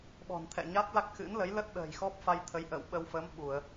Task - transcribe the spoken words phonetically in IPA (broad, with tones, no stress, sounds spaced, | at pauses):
ɓ ɔ̤˨˩ n t̪ʰ ɛ̰˧˨ ɲ a˦˥ t̚ l a˦˥ k̚ x ɨ̰˧˥ n l ə˨˦ j l ə˦˥ t̚ ɗ ə̤ː˨˩ j x ɔ˦˥ p̚ f a˧ j t̪ʰ ə˨˦ j ʔ ə̰ː˧˨ w ɓ ə˧ w f ə˨˦ m ɓ u˧˩˨ ə̯